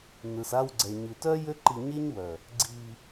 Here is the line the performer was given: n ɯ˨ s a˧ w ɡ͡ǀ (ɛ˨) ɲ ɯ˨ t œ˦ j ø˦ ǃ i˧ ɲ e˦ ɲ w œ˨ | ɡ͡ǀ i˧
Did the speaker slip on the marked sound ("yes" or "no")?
no